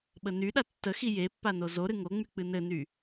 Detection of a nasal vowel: absent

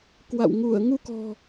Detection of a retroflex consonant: absent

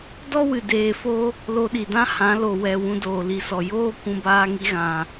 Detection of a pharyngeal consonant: absent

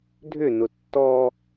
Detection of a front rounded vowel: present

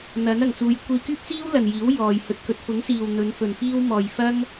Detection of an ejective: absent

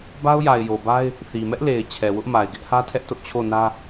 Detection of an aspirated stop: present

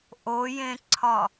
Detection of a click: present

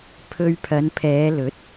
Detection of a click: absent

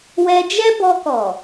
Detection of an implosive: absent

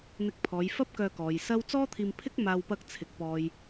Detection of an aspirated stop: present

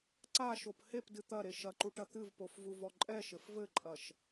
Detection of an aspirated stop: absent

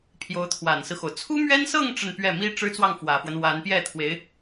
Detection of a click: absent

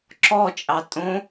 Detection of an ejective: present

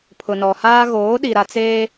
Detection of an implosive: present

